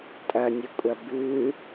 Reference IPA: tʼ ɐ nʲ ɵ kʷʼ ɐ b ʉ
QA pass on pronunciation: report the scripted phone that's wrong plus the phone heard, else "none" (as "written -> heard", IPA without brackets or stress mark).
none